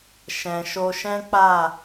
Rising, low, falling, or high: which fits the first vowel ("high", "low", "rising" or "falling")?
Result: low